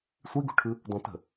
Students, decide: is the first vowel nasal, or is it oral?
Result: oral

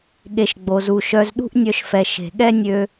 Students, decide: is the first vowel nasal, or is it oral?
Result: oral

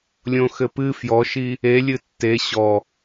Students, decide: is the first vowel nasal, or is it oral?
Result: nasal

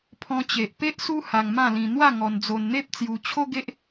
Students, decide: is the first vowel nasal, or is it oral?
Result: nasal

